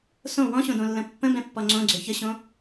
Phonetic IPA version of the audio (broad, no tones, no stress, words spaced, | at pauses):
sõ wɔ̃ɕõdõlːə̃ pːə̃bɛ̃pːɔ ŋ͡ǀõɡ͡ǀʏ çəɕõ